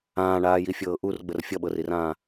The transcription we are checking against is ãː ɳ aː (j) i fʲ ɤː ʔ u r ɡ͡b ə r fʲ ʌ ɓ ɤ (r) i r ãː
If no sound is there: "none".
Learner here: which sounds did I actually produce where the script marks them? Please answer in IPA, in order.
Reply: j, r

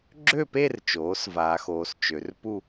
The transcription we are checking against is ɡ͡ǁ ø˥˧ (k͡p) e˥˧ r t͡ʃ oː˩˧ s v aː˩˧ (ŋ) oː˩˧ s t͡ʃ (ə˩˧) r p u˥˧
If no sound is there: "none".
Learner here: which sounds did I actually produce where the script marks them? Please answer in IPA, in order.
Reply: p, x, ø˩˧

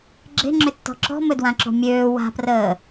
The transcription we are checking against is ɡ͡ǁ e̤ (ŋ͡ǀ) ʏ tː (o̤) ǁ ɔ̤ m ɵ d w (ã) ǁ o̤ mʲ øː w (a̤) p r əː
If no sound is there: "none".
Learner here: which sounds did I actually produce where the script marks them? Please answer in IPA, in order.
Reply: ŋ͡ǁ, ɔ̤, ã, a̤

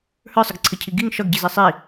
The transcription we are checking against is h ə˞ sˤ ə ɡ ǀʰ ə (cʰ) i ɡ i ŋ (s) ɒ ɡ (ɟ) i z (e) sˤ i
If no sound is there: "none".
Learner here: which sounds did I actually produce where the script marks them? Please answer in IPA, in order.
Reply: cʰ, ʃ, ɟ, i

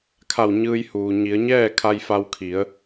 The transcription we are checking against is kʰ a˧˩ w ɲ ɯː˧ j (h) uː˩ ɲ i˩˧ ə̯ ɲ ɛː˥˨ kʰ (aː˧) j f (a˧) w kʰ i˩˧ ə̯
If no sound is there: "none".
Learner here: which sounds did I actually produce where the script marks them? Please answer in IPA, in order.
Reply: h, a˧, a˧

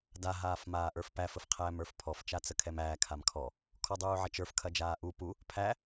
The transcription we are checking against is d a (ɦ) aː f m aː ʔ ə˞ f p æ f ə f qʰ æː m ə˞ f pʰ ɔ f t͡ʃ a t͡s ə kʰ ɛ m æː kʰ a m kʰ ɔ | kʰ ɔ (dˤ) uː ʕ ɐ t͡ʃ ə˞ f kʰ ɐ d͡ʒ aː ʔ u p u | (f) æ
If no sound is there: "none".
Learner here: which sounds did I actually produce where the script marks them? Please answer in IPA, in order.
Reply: ɦ, dˤ, pʰ

